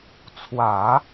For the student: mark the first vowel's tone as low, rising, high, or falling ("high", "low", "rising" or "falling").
low